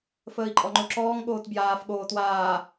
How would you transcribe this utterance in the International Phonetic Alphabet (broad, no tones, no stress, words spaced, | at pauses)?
fəːi̯ǃʼɔŋ͡ǃoǁɔːŋ ɠoːtbjaːf ɠoːtwaː